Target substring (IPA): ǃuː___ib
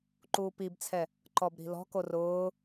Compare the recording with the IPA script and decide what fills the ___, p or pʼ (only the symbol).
p